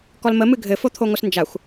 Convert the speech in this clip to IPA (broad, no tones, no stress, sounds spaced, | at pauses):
k ɔ l m ə m ɨ ɡʱ ɘ f o t̪ʰ o ŋʷ ɘ s n d͡ʒ a xʷ